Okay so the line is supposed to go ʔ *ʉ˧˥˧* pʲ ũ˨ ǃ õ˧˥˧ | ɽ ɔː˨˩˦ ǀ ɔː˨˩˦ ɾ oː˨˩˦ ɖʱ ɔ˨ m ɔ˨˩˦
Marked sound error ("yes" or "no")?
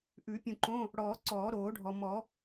yes